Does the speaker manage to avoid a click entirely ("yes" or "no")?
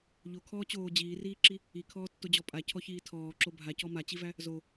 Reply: no